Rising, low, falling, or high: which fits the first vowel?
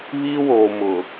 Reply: high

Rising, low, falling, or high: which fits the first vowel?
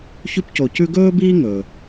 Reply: high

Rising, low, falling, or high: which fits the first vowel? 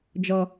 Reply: low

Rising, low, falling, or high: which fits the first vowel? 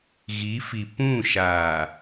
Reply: rising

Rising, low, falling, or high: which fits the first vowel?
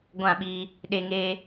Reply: falling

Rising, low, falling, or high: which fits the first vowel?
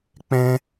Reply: high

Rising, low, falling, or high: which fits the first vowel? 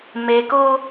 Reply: low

